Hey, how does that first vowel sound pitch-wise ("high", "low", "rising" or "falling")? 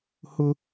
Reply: high